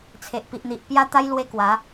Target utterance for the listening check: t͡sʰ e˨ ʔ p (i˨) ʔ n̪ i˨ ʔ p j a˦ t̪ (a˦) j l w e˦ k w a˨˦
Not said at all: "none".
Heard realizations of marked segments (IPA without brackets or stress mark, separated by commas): i˨, a˦